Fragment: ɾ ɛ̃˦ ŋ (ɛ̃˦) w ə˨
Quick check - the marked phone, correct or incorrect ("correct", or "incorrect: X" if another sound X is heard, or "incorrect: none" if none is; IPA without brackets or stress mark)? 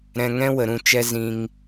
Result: correct